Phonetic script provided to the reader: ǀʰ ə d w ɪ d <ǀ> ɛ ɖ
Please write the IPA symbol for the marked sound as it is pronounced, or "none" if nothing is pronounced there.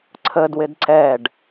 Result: ǀ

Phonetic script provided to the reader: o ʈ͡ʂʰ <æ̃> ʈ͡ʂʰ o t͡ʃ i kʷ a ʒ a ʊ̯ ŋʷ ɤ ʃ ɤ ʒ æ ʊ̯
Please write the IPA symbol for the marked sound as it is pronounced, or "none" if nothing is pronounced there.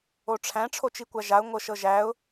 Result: æ̃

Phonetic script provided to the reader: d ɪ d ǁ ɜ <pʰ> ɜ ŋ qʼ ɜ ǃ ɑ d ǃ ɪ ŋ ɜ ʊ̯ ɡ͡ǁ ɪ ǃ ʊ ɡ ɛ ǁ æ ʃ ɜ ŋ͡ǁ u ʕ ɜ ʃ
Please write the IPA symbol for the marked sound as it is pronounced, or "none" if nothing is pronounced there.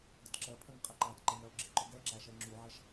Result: pʰ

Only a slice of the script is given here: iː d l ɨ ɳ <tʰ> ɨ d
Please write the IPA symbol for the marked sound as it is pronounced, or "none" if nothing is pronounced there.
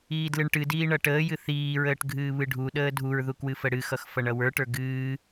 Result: ʈ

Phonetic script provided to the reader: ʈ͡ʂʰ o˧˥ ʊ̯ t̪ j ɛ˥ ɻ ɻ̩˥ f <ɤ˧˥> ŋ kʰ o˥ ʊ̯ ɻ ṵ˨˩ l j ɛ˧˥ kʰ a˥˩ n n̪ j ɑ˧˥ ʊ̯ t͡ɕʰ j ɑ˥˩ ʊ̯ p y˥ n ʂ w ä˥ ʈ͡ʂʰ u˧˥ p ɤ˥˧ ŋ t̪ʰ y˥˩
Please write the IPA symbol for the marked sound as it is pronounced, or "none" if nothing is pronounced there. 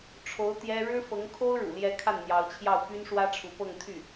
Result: ɤ˧˥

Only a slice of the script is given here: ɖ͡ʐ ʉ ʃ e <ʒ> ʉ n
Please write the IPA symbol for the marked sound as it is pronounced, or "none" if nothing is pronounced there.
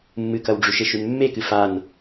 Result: ʃ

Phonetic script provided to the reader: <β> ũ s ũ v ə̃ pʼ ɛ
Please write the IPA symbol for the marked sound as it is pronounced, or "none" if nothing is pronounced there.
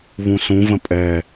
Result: β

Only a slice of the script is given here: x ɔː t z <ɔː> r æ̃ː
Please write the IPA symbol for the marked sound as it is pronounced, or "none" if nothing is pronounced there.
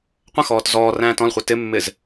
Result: ɔː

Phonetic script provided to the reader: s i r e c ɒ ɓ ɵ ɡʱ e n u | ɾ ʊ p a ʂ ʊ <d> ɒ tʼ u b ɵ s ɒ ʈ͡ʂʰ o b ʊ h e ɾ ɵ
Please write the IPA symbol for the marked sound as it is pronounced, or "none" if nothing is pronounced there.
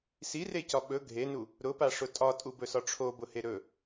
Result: tʼ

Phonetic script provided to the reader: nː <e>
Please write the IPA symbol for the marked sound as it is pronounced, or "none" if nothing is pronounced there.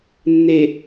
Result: e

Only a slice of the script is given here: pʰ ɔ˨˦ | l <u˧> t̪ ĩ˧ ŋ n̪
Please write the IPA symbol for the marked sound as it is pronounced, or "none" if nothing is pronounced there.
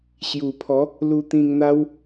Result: u˧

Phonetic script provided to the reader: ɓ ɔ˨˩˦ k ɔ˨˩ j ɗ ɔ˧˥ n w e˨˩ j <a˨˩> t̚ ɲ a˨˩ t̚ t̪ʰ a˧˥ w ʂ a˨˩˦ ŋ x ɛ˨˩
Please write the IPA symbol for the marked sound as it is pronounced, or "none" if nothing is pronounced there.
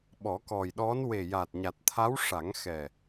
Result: a˨˩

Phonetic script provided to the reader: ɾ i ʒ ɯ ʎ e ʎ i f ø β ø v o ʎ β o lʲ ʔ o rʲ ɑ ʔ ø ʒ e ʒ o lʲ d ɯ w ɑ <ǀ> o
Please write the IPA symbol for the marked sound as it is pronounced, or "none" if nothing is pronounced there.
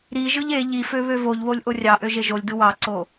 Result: ǀ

